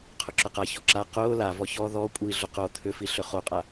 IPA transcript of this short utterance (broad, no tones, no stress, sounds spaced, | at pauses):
qʰ ʊ ǁ ʊ q a ç ɔ ǁ a q ʊː l a v ɔ ç ɔ ð ɔ kʷʼ i ɮ ʊ q o t̪ʰ ʏ f i ɬ ʏ χ o qʼ a